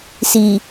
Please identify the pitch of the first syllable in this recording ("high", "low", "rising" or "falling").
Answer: low